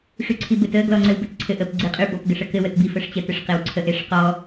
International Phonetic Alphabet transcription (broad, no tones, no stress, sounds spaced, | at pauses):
ʂ y ǀʰ i b ɘ t ə ɡ l ɔ ŋ͡ǀ ɘ w b ə t ǀʰ ɘ ʔ ə p ɡ͡ǀ i qʼ y b ɔ p ɡ ə ʂ ə k ɘ w ə t b i f ə ʂ t͡ɕ ə t ɘ ʂ q e w ǀʰ ə ʔ e ʂ q ɔ